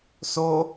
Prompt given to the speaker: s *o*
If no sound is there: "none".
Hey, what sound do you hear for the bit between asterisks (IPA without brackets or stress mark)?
o